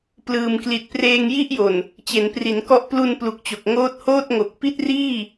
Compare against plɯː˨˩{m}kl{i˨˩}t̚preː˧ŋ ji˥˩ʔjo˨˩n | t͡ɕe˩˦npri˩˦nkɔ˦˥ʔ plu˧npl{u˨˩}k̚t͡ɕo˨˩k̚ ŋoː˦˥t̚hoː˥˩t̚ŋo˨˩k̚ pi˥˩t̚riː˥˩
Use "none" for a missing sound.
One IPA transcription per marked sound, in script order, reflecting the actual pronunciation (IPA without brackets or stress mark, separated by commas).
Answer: m, i˨˩, u˨˩